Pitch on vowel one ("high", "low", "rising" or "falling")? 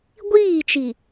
falling